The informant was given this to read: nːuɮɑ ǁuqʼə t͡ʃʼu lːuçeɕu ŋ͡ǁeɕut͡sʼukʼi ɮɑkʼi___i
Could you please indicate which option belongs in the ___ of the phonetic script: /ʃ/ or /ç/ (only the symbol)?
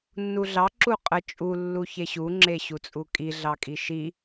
ʃ